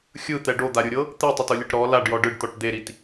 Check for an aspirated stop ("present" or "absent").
absent